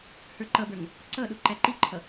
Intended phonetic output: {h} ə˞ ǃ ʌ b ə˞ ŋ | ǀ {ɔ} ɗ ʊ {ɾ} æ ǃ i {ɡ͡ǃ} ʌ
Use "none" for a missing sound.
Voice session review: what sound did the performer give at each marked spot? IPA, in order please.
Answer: h, ʌ, ǃ, ǃʰ

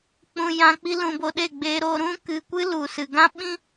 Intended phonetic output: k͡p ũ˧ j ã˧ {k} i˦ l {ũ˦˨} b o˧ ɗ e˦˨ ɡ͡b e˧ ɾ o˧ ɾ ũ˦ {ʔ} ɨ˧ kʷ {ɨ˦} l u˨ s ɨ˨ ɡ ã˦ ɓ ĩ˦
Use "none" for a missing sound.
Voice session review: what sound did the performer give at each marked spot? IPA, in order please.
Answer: k͡p, ũ˧, k, ɨ˦

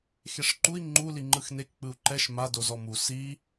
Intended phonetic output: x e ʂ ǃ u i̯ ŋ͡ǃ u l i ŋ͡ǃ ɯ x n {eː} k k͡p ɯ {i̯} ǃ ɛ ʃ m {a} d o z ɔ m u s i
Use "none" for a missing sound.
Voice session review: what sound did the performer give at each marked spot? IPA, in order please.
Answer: e, u̯, a

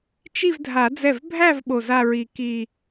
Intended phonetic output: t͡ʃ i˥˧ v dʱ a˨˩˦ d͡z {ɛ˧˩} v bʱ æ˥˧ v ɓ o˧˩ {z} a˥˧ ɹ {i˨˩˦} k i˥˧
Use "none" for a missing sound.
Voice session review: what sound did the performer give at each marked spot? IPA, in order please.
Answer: ɛ˧˩, z, i˧˩

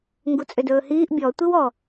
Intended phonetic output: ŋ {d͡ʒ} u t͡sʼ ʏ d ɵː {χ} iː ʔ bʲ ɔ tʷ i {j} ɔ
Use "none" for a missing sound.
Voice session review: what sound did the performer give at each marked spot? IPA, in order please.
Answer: ɡ, h, w

